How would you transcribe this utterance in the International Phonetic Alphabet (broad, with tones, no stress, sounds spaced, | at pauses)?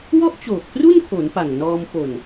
w ɔ˥˩ ʔ t͡ɕ oː˨˩ k̚ p r u˥˩ n kʰ o˩˦ n p a˨˩ ŋ n ɔː˧ m p o˨˩ n